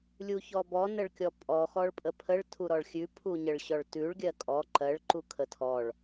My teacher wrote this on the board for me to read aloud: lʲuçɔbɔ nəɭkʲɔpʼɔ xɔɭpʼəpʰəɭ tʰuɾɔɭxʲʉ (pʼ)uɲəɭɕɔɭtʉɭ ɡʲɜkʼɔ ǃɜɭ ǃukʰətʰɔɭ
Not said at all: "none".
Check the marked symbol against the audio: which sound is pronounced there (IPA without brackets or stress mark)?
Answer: pʰ